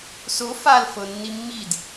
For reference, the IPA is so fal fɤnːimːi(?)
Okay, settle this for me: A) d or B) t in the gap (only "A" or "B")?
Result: A